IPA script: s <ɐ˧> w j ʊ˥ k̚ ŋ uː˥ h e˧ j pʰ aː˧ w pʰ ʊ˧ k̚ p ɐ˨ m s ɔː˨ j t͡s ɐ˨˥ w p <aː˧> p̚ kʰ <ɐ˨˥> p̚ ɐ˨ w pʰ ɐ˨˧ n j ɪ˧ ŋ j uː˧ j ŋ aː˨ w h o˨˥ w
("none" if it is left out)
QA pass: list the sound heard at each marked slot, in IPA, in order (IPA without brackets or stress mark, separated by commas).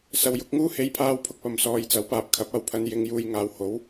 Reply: ɐ˧, aː˨, ɐ˨˥